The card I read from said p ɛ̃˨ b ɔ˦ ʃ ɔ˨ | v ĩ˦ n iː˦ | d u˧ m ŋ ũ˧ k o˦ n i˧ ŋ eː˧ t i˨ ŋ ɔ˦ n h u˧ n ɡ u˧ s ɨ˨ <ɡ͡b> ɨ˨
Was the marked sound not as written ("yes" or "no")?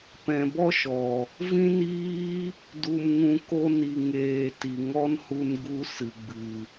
no